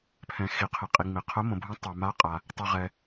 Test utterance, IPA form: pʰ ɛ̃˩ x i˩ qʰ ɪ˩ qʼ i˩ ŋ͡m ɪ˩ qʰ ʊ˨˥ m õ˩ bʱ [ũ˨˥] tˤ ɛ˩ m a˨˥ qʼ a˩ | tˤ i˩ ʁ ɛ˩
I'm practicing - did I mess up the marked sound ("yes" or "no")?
no